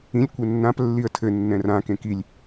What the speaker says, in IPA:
ĩ lʲ kʷ ɛ nː ã p lː i ə̯ tʰ ɘ nː ɛ̃ r ã k ẽ k i lʲ

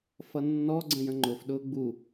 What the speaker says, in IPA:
f ʌ nː ɔ ɡ͡ǀ ə̃ j ə̃ ŋ͡ǃ ʊ f ɗ ʊː ɡ͡b u

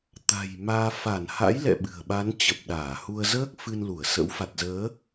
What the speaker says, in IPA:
t̪ a̤˨˩ j m aː˧ f a˧˩ n h a̰˧˥ j l ɛ̰˧˨ ɓ ɨ̤˨˩ ə̯ ɓ a˨˦ n t͡ɕ ə˨˩ p̚ ɗ aː˧˩ h u˧ ə̯ z əː˦˥ k̚ f ɨ˧ n l u˧˩ ə̯ s ə̰˧˥ w f a˨˩ t̚ z əː˨˦

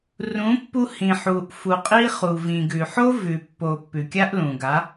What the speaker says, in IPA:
r ũ˨˦ pː u˧ h ĩ˨ ħ u˨ ʔ f u˨ qʼ i˦ χ u˨ v ĩ˨ ɡ ʉ˨ ħ o˦ v ʉ˨ pː o˨ pː ʉ˨ kʲ a˦ ʔ l ũ˨ ɡ a˨˦

